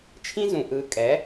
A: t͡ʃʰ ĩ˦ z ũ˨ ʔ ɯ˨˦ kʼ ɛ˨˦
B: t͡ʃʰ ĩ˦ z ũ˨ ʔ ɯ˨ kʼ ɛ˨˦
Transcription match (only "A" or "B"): B